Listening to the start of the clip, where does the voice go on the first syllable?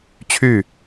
falling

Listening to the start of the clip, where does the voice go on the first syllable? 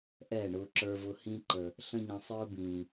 falling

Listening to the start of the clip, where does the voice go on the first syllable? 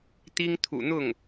high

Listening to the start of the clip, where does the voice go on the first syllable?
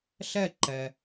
falling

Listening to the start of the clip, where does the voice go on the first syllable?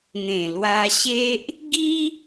low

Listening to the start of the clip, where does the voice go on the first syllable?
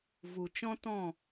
low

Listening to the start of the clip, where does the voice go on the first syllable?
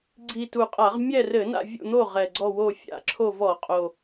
low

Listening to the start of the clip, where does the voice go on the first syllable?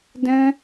high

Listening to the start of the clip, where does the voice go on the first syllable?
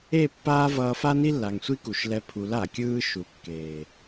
falling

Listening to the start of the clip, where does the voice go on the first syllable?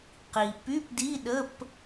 low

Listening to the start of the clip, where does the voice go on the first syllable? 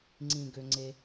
low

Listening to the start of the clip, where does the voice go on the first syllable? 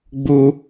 high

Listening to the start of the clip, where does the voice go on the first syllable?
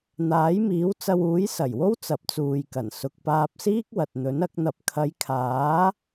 rising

